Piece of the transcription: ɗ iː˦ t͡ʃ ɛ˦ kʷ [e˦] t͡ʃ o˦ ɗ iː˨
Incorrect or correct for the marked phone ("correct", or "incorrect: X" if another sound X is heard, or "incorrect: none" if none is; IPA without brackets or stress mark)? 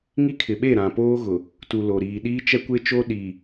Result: correct